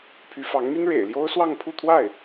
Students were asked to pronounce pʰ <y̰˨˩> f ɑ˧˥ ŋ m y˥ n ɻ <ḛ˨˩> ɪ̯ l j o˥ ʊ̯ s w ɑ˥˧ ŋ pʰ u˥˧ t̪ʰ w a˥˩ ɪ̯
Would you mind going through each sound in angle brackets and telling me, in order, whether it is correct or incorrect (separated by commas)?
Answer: incorrect, correct